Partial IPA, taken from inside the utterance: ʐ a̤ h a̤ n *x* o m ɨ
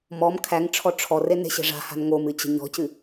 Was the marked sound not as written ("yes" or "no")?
yes